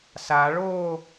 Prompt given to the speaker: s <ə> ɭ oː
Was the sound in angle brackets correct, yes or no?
no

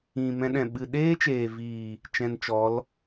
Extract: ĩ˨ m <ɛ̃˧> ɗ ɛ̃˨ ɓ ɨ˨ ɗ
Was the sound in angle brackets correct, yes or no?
yes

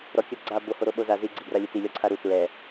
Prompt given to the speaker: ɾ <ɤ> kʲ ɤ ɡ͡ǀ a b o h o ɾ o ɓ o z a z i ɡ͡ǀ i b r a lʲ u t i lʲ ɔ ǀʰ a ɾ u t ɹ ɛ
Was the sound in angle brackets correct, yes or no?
no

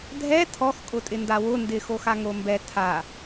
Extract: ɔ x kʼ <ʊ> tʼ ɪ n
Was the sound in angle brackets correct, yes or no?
yes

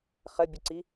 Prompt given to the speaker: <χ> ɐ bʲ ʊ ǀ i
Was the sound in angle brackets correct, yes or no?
yes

